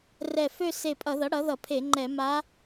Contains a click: yes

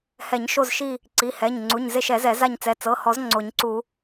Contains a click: yes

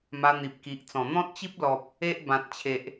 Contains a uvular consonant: no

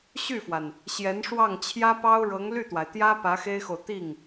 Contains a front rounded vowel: yes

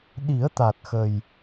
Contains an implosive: yes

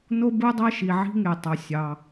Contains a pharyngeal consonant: yes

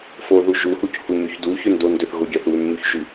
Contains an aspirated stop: no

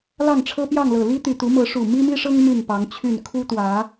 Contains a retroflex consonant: yes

